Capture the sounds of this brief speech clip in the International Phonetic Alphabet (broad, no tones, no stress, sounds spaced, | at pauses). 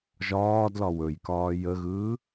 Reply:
ʒ ɒː d l ɒ w ɵ j k ɒː j ə ɣ ɯː